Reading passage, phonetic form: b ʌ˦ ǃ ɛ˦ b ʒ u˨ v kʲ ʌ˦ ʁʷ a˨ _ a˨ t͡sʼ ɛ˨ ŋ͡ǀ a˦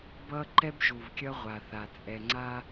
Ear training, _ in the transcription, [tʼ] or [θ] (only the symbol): θ